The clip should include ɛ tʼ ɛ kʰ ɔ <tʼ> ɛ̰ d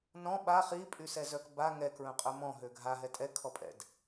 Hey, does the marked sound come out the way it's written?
no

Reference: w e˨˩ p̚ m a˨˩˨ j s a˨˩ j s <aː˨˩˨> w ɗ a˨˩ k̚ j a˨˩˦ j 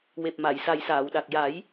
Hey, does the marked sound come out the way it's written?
yes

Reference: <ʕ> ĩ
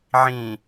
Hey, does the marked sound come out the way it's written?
yes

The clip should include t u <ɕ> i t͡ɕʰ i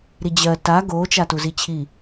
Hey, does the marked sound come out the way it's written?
no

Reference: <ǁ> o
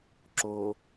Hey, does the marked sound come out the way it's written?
yes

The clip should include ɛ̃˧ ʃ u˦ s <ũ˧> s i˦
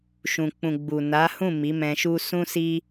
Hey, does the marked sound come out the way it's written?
no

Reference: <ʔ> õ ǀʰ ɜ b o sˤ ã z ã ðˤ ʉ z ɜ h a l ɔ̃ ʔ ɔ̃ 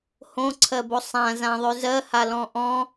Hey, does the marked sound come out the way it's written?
no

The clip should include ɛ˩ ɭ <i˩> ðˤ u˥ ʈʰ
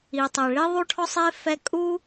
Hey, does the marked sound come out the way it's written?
no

